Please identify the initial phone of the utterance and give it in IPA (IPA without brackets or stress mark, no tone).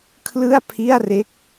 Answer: kʰ